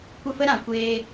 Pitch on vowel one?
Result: falling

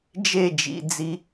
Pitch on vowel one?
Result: falling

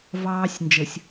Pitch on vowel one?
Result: high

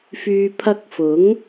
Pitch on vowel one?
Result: low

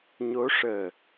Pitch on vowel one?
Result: rising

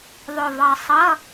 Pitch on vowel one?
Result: low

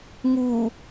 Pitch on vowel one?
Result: low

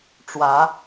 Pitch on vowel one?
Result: rising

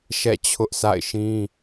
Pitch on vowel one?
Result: falling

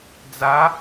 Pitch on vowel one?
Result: rising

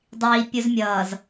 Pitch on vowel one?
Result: high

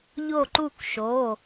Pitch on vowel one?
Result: falling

